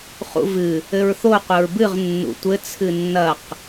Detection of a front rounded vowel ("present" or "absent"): absent